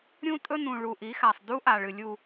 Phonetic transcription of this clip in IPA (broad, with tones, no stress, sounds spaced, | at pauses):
ɾʲ ũ˦ tʼ ɵ˦ n ũ˨ ɭ u˨ ʔ i˨˦ x a˨ sˤ d u˦ ʔ a˨ ɭ ɨ˨ lʲ u˦˨